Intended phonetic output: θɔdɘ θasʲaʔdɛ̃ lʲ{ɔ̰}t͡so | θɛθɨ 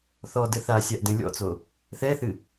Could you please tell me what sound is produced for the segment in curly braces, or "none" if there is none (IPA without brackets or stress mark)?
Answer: ɔ̰